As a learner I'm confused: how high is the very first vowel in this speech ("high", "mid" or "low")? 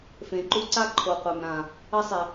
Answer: mid